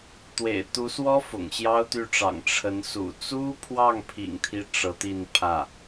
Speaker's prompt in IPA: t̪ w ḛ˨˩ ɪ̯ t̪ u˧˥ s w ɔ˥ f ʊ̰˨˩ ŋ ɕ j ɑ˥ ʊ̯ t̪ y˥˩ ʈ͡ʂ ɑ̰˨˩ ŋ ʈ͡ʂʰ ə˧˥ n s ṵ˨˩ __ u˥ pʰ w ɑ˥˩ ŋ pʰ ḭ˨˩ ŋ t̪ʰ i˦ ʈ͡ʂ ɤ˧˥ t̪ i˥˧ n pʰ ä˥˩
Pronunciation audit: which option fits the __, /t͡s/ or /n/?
t͡s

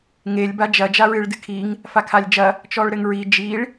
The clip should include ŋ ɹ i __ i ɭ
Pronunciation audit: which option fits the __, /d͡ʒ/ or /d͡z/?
d͡ʒ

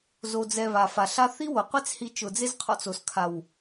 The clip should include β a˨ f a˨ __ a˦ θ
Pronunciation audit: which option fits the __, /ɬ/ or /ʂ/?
ɬ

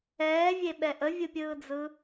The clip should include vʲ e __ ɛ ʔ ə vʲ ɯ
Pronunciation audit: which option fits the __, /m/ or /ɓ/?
ɓ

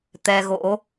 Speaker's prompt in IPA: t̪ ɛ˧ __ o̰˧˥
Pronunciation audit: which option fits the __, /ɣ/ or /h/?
ɣ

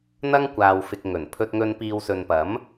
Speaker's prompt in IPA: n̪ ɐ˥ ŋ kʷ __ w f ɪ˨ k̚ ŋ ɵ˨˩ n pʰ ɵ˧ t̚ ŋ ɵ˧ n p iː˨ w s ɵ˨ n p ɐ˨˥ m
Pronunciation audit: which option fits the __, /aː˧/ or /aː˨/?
aː˨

